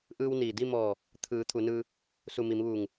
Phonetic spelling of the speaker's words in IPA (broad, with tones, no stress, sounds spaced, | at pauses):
ʔ ɯː˧ w n iː˩ d i˥˨ m ɔː˧˩ | t̪ʰ ɯː˩˧ t̪ʰ u˩˧ n ɯː˧ | s u˧˩ m i˩˧ m ʋ uː˧˩ ŋ